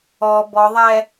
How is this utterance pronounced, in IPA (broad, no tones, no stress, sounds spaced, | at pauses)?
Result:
ɔ b ɔ ðˤ ɛ